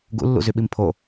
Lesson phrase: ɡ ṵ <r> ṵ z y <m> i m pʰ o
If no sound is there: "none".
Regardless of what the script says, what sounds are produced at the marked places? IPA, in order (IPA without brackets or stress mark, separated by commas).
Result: lː, ɓ